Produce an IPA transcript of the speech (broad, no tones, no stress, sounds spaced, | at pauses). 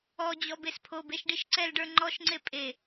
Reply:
ɔ d͡ʑ ɔ b e s pʰ o b e ʃ ɖ i ʃ ǀ ɛ l ɖ ə˞ ŋ͡ǃ ɔ ʃ ŋ͡ǀ e pʼ e